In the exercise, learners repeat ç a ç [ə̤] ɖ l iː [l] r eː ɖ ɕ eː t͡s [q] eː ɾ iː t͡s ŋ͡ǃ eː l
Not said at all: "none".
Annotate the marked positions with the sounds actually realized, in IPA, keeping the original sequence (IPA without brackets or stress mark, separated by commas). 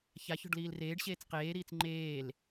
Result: ɔ̤, l, q